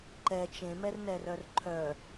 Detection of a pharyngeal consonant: absent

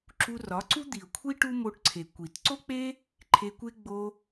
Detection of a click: present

